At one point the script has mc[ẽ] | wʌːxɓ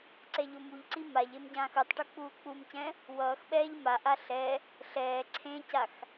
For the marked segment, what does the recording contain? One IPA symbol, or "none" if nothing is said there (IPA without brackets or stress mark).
ɛ̃